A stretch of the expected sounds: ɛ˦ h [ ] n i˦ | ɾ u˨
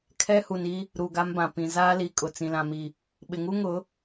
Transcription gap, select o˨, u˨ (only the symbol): u˨